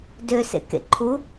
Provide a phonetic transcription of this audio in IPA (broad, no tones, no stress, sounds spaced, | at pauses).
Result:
d ø s ḛ k ḛ ǃʰ u